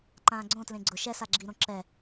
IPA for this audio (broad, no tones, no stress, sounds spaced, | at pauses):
ǃ ãː ɡ͡ǀ õ t l ẽ ɡ͡ǀ ʊ ʃ ɛ s a ɡ͡ǁ i ɾ õ ǁ ɛ